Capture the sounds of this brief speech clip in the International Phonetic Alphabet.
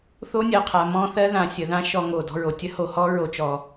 θ o˥ nʲ ɜ˨ qʰ a˩ m ɔ̃˦ θ ɜ˦ ð ã˨ sʲ ə˩ ð ã˦ ʃ ɔ˨ ŋ o˩ d ɔ̤˨ ɹ o˩ tʲ ə˥ h o˩ h ɔ˥ ɹ o˩ t͡ʃ ɔ˩

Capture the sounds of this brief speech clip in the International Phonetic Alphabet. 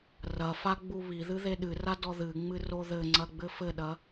r ɐ f a ɡ͡b u β i ð ɨ ð e ɗ ɨ r a d ɔ ð ɨ ŋ͡m ɨ r o ð ɘ ŋ͡ǀ ɐ ɡ͡b ɘ f ɘ ɗ ɐ

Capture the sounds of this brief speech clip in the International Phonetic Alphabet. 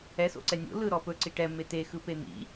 ɛ s o̰ ǀ ɛ nʲ o̰ l ɯ ɾ ɔ p ɵ ǀ i ʈ ɛ m e t e x ɯ p e n̪ ḭ

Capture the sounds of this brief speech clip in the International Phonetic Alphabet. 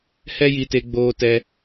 h ɛ˦ j i˧ t e˧ ɡ͡b oː˧ t ɛ˧

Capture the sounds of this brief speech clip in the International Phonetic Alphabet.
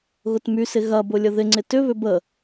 ɣ ʊ t m y s ɪ ɣ ɐ b ʊ lʲ ə ð ɪ ŋ͡ǀ ɪ t ʏ β ʏ b ə

